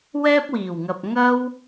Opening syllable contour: high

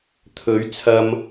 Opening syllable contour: rising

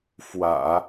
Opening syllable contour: low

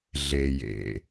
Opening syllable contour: low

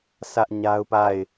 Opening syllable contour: high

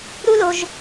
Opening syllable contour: high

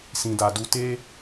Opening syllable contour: low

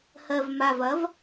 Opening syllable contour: low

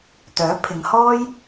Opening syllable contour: rising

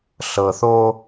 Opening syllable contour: low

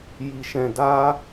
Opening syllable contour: low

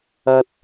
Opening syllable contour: low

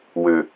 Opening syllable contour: low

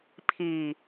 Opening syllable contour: low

